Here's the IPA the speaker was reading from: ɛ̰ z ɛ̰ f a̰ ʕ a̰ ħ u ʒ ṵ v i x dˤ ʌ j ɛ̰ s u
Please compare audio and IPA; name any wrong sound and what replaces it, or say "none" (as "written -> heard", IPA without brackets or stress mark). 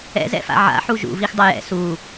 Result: none